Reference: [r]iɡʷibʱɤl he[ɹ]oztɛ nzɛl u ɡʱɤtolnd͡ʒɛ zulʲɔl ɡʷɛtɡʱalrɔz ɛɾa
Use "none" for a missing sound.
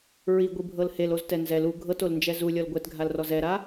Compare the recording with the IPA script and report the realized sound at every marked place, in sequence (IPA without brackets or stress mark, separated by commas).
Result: ɹ, l